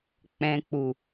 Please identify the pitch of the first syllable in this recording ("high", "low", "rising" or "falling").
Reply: low